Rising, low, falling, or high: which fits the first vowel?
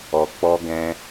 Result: low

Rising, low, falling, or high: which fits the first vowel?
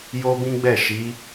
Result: high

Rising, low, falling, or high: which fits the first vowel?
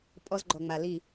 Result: high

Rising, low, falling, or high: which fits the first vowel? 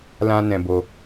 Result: high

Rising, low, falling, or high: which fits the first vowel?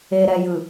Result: low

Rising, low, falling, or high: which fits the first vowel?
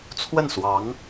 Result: falling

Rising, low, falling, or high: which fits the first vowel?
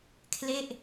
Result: falling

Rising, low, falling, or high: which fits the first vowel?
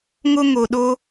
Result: high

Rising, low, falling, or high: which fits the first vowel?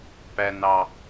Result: high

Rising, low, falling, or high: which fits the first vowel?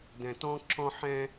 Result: low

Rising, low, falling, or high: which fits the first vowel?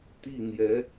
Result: falling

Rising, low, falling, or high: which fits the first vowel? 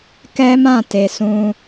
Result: high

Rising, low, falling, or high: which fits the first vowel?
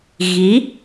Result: rising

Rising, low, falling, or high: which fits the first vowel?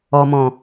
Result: low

